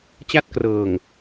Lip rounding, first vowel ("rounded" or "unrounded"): unrounded